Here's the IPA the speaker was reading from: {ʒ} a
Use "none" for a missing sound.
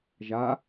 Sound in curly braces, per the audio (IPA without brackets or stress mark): ʒ